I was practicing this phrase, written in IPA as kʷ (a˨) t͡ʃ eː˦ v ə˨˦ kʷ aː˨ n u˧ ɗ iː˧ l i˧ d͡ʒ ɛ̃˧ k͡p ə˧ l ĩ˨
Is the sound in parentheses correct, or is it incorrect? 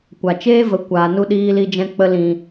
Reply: correct